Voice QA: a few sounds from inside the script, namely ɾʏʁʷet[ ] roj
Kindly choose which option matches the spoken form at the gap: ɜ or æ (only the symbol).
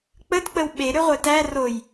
æ